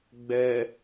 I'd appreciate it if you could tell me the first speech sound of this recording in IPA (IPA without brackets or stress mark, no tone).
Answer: ɡ͡b